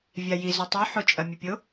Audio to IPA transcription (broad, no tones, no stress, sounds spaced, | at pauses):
vʲ a j i z ɵ tˤ o ħ o t͡ʃʼ ɐ mʲ ɵ pʲ o